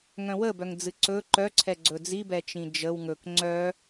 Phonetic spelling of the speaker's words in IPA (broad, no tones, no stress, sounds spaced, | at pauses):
ŋ œ̃ w ə b œ ŋ d͡z ɨ ǀ ɵ ǃ œ ǀʰ ɛ ɡ͡ǀ ɵ d͡z i b ɛ t͡ʃ ĩ d͡ʒ ə w ŋ ɵ k ŋ͡ǀ œ